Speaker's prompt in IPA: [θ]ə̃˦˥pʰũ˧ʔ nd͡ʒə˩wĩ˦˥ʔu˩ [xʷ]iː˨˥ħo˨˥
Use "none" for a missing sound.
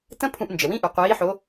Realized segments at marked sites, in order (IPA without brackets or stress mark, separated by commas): t, qʷ